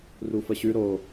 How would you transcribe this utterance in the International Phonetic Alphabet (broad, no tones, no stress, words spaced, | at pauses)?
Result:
rufəɕʉ ɾo